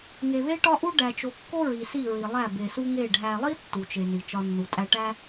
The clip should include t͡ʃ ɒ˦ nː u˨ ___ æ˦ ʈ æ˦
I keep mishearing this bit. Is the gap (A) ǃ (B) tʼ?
B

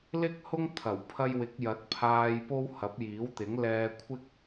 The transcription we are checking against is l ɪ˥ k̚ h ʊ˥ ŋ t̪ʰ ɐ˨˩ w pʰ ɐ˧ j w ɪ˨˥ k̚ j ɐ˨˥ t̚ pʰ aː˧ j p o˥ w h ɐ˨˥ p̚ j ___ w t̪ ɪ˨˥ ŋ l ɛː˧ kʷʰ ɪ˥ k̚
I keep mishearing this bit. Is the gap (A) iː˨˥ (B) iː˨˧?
A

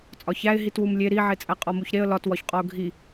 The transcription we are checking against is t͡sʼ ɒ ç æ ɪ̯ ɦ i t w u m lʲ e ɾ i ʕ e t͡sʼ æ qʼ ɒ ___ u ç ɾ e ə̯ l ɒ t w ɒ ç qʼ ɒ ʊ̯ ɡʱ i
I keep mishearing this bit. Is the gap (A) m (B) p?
A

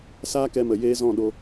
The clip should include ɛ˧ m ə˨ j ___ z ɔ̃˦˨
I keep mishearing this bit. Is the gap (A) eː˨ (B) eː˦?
B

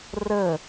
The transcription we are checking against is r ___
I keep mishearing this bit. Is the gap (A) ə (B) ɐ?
A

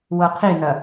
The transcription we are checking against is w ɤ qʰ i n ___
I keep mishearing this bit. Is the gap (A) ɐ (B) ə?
A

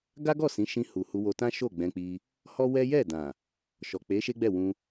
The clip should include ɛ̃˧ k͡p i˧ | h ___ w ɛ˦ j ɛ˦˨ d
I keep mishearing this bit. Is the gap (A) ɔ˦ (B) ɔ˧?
A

